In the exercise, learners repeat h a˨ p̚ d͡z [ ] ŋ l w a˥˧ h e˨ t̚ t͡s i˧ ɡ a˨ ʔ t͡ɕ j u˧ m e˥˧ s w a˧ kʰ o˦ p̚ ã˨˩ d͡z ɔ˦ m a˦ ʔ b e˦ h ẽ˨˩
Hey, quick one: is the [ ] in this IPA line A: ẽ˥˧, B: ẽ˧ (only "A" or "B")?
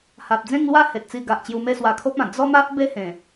A